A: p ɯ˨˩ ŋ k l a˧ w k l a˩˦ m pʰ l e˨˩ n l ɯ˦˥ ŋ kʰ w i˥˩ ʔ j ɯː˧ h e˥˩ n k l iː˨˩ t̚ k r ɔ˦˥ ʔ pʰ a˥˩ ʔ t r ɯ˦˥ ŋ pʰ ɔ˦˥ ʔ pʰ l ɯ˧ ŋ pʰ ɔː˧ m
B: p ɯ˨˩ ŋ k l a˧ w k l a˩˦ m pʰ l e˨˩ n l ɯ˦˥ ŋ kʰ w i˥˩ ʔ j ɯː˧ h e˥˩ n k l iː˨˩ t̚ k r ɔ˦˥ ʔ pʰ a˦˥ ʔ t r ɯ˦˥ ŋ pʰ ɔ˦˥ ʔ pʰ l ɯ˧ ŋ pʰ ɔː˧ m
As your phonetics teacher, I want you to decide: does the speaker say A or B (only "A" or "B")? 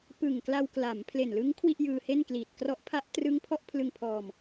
B